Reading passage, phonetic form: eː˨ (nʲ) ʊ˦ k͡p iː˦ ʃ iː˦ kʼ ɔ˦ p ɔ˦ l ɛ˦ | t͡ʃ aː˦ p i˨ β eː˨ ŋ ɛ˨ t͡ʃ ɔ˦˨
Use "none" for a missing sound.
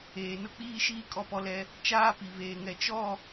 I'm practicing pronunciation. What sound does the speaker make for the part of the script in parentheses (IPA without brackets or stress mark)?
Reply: n